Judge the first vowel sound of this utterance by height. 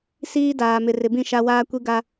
high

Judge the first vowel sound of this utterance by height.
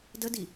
mid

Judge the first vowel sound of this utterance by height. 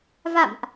low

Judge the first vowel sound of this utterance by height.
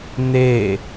mid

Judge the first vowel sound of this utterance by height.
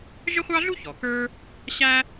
mid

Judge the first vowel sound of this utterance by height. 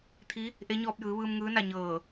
high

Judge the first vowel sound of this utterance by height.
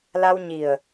low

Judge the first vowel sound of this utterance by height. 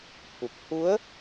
high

